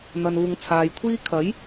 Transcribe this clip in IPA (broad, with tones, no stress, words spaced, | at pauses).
n̪ɐ˨nuː˨ŋt͡sʰaː˨jkʷʰiː˥ kʰɐ˨˥j